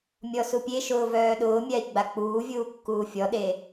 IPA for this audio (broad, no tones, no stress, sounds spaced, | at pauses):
mʲ ɔ s u pʲ e ʃ ʊː v œː ɗ ʊː mʲ a i̯ ɡ͡b a k͡p uː vʲ uː kː uː fʲ ɔ ɗ e